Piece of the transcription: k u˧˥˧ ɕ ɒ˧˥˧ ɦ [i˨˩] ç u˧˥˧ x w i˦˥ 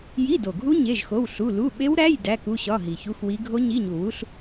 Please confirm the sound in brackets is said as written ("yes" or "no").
yes